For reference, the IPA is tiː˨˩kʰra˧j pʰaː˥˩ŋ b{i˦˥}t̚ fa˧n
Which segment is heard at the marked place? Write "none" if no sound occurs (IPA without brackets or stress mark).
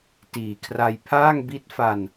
i˦˥